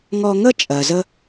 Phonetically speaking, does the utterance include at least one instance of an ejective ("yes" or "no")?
yes